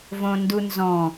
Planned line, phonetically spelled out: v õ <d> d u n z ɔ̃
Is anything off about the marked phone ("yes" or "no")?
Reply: yes